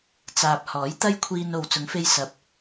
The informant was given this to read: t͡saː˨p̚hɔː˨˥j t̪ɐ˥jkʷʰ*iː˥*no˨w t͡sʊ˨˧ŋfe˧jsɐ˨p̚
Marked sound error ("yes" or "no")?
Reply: yes